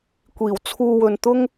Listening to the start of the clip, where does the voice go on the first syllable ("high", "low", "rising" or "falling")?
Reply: low